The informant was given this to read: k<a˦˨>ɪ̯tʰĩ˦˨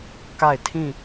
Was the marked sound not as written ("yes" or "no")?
no